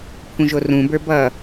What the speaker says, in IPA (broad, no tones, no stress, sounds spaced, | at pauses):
pʰ ũ ʒ o r ũ b ə˞ b ʌ